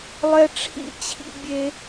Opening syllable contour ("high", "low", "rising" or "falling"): high